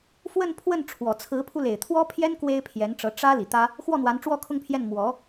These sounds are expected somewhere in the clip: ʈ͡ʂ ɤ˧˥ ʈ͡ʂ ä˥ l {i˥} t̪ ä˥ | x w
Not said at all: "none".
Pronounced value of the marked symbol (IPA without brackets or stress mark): i˨˩